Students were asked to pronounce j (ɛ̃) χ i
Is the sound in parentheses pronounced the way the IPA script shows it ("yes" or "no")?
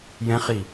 yes